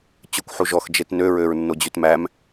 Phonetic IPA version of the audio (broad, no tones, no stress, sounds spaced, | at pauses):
t͡ɕ ɵ kʷ ħ u ʒ ɔ x d͡ʒ e t n ø ɹ ø ɹ nː o d͡ʑ ʉ t m æ m